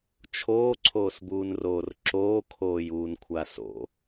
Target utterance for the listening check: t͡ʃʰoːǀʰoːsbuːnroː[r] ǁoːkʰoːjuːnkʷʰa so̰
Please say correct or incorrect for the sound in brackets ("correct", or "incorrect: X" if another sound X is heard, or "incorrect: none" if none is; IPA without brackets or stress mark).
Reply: correct